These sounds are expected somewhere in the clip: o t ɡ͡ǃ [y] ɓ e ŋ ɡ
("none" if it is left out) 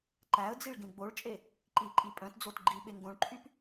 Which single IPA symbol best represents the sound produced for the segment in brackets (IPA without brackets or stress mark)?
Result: i